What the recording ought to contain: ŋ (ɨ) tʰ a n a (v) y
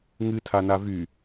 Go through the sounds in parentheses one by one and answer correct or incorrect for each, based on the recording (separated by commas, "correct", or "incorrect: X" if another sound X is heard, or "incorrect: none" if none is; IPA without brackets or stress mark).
correct, correct